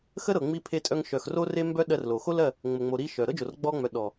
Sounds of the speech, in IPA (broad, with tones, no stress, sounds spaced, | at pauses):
x ə˦ ɾ ɤ˨ ŋ͡m i˧ pʰ e˧ tʼ œ˧ ŋ ʃ œ˨ x r o˦ r e˦ m b œ˦ ɗ ɜ˧ r l o˨ x o˦ l ɜ˦˨ | ŋ͡m ə˨ ŋ͡m o˨ ɾ i˧ ʃ œ˨ ɾ ɤ˦ d͡ʒ o˨ r ɡ͡b ɔ˧ ŋ͡m œ˨ ɗ ɔ˨